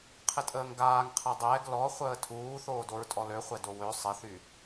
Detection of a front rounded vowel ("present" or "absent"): present